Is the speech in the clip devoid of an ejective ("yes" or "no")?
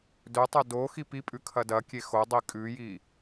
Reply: no